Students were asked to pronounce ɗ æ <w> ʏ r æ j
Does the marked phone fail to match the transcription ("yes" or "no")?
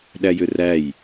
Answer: yes